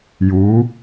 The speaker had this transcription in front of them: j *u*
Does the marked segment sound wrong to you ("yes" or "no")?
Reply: no